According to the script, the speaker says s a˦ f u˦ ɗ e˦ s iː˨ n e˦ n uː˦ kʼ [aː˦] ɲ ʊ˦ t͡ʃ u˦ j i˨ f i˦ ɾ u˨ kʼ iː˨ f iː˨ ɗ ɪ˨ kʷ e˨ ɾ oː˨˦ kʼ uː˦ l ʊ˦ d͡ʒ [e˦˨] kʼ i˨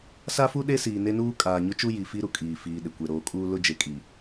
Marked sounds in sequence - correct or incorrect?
incorrect: aː˨, incorrect: e˨

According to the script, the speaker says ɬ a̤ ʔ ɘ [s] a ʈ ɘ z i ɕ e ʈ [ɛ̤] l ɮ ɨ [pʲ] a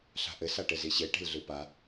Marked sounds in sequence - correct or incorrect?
correct, incorrect: e̤, incorrect: p

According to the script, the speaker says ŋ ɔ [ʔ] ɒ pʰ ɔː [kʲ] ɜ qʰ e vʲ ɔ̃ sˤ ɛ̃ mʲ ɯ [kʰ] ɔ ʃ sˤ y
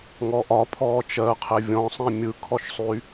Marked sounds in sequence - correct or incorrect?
correct, incorrect: t͡ʃ, correct

